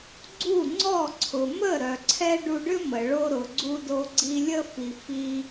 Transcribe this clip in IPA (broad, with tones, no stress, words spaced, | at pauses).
ɡ͡ǀu˦˨ŋ͡ǀɔ˦˨ǀʰʊ˨ mə˦˨ɾœ˨ǀʰɛ˧ ɖu˧ɖʏ˦mə˨ ɭo˧ɾʊ˨ ɡ͡ǀu˧do˧ɡ͡ǀi˧ lʲə˧fi˨ fi˧